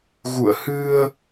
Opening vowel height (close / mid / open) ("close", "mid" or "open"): close